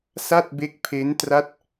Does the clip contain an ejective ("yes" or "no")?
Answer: no